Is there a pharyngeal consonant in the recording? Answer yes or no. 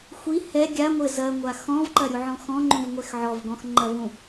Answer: yes